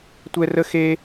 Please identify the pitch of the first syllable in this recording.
high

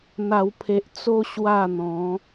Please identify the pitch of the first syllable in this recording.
low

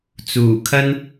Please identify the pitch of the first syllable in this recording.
low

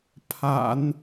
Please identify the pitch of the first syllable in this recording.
low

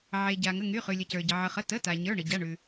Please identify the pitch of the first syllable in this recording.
low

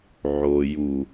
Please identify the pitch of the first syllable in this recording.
low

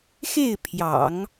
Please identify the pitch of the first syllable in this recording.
falling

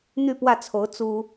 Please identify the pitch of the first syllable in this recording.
falling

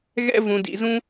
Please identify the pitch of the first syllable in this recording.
high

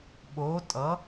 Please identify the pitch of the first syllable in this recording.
rising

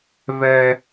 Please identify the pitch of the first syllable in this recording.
high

